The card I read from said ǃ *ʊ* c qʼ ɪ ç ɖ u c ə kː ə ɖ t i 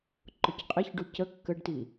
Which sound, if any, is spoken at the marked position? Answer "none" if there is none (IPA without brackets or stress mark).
ʊ